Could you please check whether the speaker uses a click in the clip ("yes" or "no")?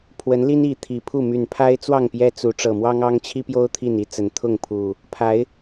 no